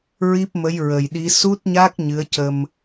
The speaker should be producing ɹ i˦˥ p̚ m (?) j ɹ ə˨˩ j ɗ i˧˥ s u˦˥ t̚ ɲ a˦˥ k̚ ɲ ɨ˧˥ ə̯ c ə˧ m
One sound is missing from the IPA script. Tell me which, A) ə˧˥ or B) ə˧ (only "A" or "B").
A